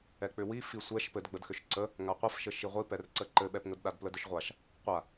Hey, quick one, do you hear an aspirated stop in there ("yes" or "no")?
no